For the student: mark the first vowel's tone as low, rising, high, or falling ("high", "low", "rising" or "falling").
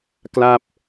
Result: falling